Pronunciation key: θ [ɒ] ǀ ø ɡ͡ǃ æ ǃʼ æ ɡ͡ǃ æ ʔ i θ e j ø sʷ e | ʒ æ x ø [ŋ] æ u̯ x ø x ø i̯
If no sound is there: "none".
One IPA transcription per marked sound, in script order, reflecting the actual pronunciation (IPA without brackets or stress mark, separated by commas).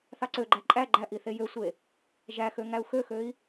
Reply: ɑ, ŋ